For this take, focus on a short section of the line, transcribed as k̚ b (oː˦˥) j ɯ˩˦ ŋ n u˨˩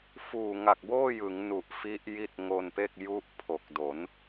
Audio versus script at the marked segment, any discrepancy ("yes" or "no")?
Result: yes